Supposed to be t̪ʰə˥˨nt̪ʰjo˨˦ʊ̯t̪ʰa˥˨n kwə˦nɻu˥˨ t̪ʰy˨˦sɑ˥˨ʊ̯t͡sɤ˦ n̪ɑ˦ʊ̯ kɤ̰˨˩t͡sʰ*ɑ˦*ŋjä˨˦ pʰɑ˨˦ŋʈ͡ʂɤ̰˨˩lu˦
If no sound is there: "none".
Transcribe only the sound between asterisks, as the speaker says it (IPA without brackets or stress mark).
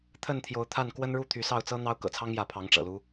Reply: ɑ˦